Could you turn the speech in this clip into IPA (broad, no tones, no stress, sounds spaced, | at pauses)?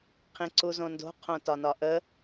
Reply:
qʰ ĩ ǀ u z õ n d o̤ qʰ õ t ɒ n ɒ ʔ ə